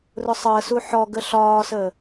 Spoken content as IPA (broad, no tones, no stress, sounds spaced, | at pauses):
r ʊ sˤ əː s u ħ ɔ ɡ ə ɬ ɒː s əː